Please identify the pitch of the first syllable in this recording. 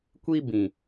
high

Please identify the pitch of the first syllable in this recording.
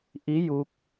rising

